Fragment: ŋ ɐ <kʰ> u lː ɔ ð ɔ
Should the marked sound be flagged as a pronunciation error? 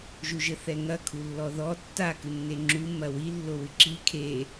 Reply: no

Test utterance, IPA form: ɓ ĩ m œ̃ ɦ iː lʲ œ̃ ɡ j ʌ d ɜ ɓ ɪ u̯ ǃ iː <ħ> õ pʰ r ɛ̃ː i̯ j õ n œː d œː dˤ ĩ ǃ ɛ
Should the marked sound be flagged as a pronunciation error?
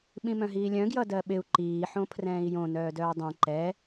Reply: no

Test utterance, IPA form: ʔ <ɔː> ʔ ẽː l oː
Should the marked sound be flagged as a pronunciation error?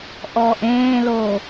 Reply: no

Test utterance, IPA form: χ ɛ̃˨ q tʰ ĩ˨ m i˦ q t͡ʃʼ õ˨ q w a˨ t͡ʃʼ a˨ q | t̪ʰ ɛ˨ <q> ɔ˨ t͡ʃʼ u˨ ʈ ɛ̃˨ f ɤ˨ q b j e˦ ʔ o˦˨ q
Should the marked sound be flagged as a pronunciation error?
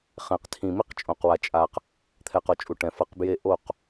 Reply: no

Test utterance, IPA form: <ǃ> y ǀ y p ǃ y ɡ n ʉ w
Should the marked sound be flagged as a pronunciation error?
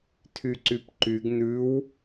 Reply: yes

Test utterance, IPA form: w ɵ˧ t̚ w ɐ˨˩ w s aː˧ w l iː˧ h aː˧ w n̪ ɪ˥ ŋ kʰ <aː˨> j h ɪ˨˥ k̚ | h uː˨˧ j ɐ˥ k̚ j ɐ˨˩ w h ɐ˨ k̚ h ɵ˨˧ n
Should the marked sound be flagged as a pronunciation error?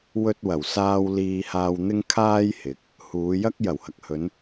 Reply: yes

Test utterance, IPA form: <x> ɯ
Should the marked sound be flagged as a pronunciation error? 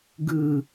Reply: yes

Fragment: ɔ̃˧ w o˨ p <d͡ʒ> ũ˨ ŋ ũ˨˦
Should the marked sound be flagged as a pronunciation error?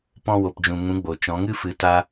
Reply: no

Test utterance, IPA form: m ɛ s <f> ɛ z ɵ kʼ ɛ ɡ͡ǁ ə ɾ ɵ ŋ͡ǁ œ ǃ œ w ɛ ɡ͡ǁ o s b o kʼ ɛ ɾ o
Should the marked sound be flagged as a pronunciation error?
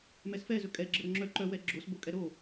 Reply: no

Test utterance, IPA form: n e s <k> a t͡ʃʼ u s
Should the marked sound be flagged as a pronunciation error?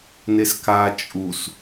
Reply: no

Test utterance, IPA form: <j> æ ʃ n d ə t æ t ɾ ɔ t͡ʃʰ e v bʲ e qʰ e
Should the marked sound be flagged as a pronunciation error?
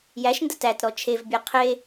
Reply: no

